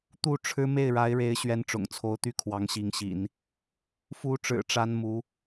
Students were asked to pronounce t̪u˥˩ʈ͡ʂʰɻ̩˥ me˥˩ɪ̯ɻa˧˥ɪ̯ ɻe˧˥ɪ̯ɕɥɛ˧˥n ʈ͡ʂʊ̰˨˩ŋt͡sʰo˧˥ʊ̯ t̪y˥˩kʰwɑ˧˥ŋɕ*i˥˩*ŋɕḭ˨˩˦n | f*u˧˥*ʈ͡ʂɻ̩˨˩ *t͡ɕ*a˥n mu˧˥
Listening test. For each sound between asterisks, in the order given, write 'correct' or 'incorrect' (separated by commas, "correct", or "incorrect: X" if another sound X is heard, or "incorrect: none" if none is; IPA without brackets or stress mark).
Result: incorrect: i˧˥, correct, incorrect: ʈ͡ʂ